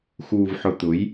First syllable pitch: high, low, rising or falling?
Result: low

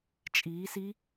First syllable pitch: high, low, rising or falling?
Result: rising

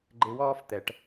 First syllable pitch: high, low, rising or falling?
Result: rising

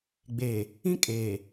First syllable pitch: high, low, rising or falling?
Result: low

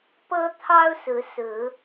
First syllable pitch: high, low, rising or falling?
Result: high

